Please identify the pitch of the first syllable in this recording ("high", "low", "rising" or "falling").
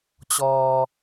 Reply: low